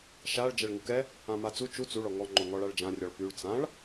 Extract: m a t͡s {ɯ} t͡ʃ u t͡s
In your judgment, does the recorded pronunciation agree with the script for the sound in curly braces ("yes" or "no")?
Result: no